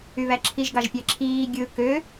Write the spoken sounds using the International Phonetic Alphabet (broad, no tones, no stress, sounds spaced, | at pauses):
y β æ ǁʰ i ʒ ɡ ɑ ʒ pʲ æ ǁʰ iː ɡʲ ɯ k ø